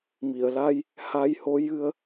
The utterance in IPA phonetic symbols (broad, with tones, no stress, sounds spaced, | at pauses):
m i˨˩˨ ə̯ l a˧ j | h a˧ j h o˧˥ j ɨ˧ ə̯